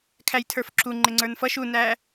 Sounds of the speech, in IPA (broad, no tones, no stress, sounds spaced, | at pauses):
kʰ æ j tʰ ə˞ f ǁ u ŋ͡ǃ ɪ ŋ͡ǀ ə˞ n f ʌ ʃ u n æ